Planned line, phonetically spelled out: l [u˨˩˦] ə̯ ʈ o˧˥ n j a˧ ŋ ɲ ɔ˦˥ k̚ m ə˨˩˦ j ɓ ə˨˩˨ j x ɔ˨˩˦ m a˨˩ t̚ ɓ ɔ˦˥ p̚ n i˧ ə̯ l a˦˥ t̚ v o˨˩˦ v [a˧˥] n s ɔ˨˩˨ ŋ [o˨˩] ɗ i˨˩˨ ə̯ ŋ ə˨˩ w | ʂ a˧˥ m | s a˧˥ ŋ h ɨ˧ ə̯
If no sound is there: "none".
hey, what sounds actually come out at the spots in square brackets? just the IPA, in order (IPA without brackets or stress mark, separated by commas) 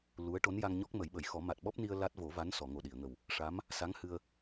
u˧˥, a˧˥, o˨˩